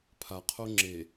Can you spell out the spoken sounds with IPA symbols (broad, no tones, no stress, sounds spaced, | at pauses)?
pʰ a qʰ o ŋ͡ǁ e